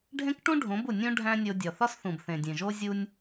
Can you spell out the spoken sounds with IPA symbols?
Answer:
ɖʱ ẽ˦ k ʈ ũ˦ ɖʱ õ˨˦ b u˨ nʲ ũ˦ ɖʱ æ̃˦ nʲ o˧ dʲ ɒ˨ θ ɒ˦ s θ ũ˨ b θ ẽ˨ dʲ ẽ˨ ʒ o˦ zʲ u˦ nʲ

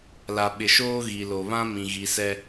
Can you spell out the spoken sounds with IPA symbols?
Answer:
l a˨ ɓ ɪ˨ ʃ oː˦ ɣ i˨ l o˨ β ã˦ m ĩ˨ ɣ i˨˦ s ɛ˦

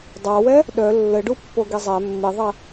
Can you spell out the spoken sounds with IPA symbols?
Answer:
dˤ a w ɛ | ɗ œ lː ə ɖ u pː o ɡ i zˤ ɛ mː i ðˤ ɛ

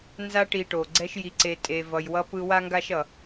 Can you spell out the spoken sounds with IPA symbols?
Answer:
n z a˦ ʈ i˨ ʈ o˩ ɡ͡ǀ ɛ˦ ʃ j i˨ ǀ e˨ tʼ e˨ v ʌ˨ j w ʌ˦ p ɯ˦ w a˥ ŋ ɡ a˥ ʃ ʌ˩

